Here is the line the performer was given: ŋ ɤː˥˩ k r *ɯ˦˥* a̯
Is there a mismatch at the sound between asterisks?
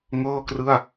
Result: yes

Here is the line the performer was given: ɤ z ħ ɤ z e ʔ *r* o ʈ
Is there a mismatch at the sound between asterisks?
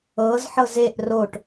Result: no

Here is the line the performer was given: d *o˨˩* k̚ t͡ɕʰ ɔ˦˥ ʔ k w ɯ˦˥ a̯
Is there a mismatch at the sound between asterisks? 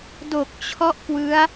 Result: no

